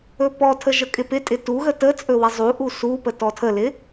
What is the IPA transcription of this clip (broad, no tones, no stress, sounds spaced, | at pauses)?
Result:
ɵ p ɔ tʰ ə ʒ ə kʼ ɪ p ɪ tʼ ɪ t u ɣ ə t ə t͡sʼ ɵ w ɪ zˤ u ʔ u s u p ə t ɔ tʰ ə l ɪ